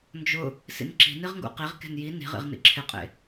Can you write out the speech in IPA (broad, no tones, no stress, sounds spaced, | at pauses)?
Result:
n d͡ʒ ʊ | s ḭ n ǁ i̤ n i ʁ ŋ ɡ ṵ q i ʁ k e̤ n j i n i̤ ʁ ḭ ʁ n ḭ ǁʰ ɪ qʼ ḛ